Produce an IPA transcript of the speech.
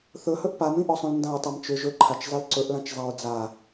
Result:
θ ɵ h ɵ ʔ p a m ĩ ʔ ɔ sˤ ũ l n d ã ɹ tˤ a m t͡ʃ ʏ ʒ ɵ ǃʰ a t͡ʃ zˤ i l ǀ ɵ ʔ l ã t͡ʃ zˤ a ɹ d͡z a

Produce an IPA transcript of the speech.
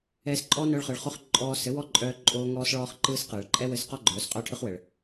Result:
ɛː˧ s ǃʼ ɔː˦ n œː˧ ɭ χ ɯ˨ ɭ χ o˦ χ ǃʼ ɔː˧ s ɘ˨˦ w ɔ˦ ǃʼ œː˧ ǃʼ oː˧ ŋ ɔː˦ s ɭ ɔː˦ χ ǃ ɯː˦ s q ɯː˨ ɭ ǃʼ ɛ˦ w ɘ˧ s q ɔ˦ ɡ͡ǃ œː˨˦ s qʼ œː˦ ʈʰ ɯ˦ χ w ɘ˨ ɭ

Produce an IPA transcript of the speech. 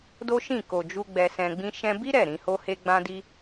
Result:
d o˦ ʃ ĩ˦˨ k o˨ d͡ʒ u˧ ɡ͡b ɛ˧ s ɛ̃˧ ɡ͡b ĩ˦ ʃ ɛ̃˧ b i˦ ɾ ɛ˦˨ ɾ ĩ˧ h o˦ h e˦ ɡ͡b ã˦ d i˦

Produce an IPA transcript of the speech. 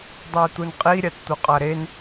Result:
dˤ e i̯ t̪ u n qʼ i ɾʲ a t t̪ u qʼ a ɾ e n

